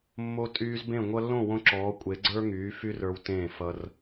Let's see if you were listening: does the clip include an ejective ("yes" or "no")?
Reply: yes